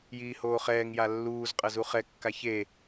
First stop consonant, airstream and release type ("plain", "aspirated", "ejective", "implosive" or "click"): ejective